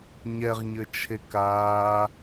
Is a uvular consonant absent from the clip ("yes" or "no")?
no